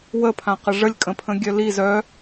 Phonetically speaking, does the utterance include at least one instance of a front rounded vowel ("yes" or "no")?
yes